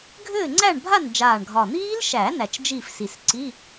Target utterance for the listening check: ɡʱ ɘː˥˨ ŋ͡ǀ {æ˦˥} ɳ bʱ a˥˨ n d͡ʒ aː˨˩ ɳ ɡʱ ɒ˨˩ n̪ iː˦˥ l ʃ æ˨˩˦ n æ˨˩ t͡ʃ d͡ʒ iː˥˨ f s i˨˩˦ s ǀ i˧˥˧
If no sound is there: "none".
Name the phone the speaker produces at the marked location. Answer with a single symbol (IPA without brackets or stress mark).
æ˥˨